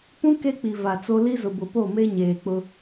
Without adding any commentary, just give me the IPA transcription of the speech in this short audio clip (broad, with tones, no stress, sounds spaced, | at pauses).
p ũ˦ k e˦ k͡p i˨ v a˨ t͡s o˦ l i˦ z ʊ˨ b ʊ˨ p o˦˨ m e˦ ɲ eː˨ k͡p ʊ˦